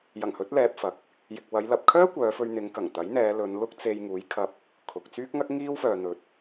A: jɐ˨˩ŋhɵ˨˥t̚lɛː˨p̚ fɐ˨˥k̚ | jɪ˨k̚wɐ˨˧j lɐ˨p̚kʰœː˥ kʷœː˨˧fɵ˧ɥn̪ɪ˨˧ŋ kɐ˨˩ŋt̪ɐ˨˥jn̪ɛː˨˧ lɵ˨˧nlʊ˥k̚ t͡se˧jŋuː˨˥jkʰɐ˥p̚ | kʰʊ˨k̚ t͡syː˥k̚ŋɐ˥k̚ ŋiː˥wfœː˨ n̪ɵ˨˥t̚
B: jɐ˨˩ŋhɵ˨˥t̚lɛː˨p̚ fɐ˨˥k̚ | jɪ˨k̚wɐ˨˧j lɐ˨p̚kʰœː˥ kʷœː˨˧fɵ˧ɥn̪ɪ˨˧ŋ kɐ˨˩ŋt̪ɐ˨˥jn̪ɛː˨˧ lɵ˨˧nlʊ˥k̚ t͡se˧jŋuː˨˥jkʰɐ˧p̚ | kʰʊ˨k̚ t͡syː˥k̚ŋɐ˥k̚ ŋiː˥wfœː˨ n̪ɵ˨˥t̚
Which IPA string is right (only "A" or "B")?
B